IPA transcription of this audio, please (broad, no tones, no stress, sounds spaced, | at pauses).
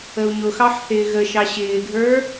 ə u̯ ɲ ʊ x ɑ ħ θ ɪː ɣ ə ʃ ɑ ɕ ɪː ɡʱ ə˞